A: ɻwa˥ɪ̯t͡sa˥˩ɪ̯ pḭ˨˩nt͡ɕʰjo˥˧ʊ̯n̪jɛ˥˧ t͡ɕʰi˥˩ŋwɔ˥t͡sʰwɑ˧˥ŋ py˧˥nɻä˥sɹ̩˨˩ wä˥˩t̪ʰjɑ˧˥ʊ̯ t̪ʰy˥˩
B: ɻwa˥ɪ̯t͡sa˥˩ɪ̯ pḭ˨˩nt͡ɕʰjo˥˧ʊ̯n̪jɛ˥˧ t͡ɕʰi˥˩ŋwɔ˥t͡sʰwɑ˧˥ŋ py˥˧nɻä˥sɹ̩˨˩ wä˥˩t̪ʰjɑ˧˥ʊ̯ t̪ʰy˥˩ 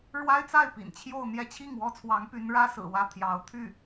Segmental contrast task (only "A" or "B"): A